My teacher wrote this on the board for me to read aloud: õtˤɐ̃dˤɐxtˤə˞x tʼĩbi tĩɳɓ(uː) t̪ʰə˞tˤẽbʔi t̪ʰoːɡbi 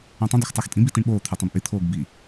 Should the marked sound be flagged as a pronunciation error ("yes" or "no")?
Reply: yes